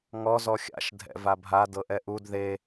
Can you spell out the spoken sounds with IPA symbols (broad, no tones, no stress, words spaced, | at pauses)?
ŋɔ zɔxʲa̰ʃ dʱɛ̰vabʱa dɤʔɛʔud ðe